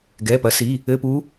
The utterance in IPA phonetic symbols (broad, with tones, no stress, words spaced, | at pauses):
ɡɛ˩˧˩ pɐ˩˥si˩˧˩ | ɘ˧˥˧pu˧˥